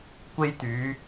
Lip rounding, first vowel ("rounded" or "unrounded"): unrounded